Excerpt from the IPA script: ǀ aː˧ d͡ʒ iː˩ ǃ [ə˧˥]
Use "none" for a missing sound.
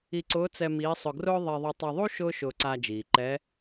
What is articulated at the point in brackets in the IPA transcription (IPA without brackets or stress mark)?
ɛ˧˥